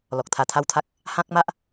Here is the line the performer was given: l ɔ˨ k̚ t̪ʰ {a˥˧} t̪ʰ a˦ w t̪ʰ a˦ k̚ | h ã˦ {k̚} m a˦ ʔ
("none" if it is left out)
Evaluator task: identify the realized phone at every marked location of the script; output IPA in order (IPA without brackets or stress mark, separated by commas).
a˧, k̚